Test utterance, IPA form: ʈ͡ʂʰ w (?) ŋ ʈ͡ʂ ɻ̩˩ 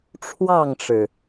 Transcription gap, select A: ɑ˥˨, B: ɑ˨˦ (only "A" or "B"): A